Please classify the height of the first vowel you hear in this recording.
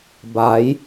low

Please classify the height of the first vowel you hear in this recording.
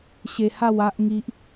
mid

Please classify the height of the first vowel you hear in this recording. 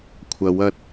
low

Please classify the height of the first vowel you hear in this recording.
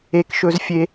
mid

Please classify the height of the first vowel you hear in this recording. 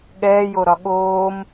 mid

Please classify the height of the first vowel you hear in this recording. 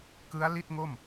high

